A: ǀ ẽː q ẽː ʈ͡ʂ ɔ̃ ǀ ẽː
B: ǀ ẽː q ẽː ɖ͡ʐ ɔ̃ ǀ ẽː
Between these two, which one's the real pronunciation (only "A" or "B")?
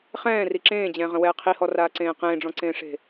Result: B